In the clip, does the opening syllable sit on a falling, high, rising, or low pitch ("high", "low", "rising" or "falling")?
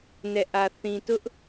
low